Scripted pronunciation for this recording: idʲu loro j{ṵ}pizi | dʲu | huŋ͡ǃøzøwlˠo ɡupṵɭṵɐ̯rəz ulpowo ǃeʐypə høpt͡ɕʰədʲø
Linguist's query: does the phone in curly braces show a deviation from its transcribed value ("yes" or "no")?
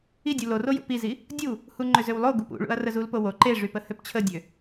no